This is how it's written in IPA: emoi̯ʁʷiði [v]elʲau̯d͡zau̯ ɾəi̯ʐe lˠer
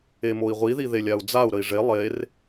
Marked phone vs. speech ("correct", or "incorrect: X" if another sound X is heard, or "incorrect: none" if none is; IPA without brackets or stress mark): incorrect: ð